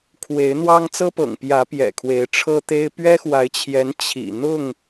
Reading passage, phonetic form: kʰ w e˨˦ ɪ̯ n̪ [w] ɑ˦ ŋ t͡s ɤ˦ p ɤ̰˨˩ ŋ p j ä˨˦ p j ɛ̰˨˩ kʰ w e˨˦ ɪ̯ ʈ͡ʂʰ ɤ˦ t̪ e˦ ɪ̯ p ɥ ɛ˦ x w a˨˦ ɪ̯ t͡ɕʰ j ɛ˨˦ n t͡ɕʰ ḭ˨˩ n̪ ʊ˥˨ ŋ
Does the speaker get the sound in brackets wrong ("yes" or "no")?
no